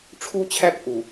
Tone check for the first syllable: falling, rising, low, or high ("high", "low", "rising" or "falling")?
high